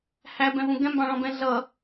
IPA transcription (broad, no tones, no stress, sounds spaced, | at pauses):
h æ b ɛ̃ v ũ ɡ ɛ̃ m b ɑ̃ ɭ ɔ̃ b ɛ̃ ɮ ʌ